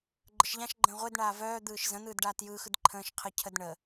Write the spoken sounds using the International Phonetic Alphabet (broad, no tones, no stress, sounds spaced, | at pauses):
ɡ͡ǃ ə ʃ ʎ ã ʃ ɡ͡ǃ ə̃ː ʁʷ e d ɳ aː v œː d̪ ɯː ʃ z ə̃ n̪ ɯː d ɖ aː t j ɯː x ɯ d ǃʰ ə̃ː ʃ qʰ ə cʰ ə d ɳ ə